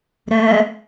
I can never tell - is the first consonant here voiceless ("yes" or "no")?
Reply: no